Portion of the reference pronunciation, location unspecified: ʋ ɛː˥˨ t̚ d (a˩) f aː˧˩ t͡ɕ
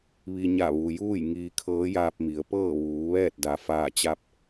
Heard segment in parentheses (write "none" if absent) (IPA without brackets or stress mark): a˩